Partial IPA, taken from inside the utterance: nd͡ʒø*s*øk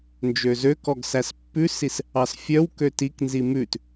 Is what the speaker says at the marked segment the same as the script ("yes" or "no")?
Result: no